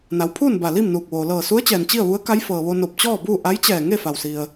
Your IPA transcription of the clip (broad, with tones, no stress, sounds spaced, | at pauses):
n a˩˧ w pʰ uː˥˨ n b a˧˩ l i˥˨ m n uː˧˩ k̚ ʋ oː˩ l ɤː˧˩ s u˧˥ ə̯ t͡ɕ ɛː˩ n t͡ɕ i˥˨ ə̯ ʋ u˧˥ ə̯ k a˧˥ j f ɤː˩ ʋ o˧ n o˧˩ p̚ t͡ɕ ɔː˥˨ b uː˥˨ ʔ a˧˥ j t͡ɕ ɛː˧˩ ŋ e˥˨ f a˩ w s i˩ ə̯